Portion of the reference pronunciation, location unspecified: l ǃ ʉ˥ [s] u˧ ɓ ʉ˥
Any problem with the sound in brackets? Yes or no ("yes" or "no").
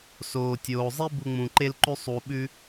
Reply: yes